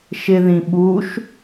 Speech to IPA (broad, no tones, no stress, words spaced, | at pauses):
ʃɪðĩ ɓuʃ